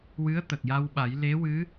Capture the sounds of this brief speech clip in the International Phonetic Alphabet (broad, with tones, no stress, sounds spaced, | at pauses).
w ɨ˧˥ ə̯ t̪ ə˨˩ k̚ j a˧ w ɓ a˨˩˦ j l e˧˥ w ɨ˧˥